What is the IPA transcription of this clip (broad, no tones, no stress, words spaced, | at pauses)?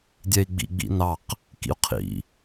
dʲɛi̯ɡ͡bḭ ɡ͡bḭnɑq | kḭu̯qʰḭ